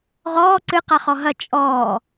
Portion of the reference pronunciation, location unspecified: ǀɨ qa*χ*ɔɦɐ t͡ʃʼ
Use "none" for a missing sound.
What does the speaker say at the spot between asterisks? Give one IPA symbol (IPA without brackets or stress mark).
χ